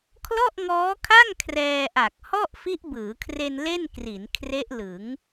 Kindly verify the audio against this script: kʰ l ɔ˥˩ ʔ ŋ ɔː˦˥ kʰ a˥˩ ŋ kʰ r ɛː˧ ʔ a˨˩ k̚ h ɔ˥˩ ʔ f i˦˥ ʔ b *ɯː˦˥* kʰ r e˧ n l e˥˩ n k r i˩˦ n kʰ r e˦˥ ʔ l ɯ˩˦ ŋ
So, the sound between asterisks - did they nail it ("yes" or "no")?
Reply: no